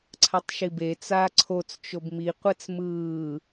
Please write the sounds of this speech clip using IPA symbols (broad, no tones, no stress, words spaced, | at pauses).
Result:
ǀʰatˤʃibe t͡saːǀʰot͡s t͡ʃobmi qʷɛt͡smɯː